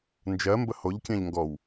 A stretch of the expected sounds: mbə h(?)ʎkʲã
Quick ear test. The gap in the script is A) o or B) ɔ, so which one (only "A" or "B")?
A